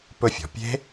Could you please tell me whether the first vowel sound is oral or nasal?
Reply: oral